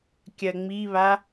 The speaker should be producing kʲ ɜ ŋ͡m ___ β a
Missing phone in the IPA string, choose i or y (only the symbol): i